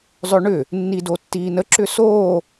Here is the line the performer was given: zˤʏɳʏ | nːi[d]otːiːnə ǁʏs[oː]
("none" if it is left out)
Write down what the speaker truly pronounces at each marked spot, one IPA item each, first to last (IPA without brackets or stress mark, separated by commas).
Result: d, oː